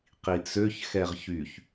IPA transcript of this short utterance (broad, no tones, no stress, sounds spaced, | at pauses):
q i t͡s ø ç x ɛ ʁ ç y ç